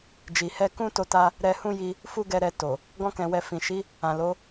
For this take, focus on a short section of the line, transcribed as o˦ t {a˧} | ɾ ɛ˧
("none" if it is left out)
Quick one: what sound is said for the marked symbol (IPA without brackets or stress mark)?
a˦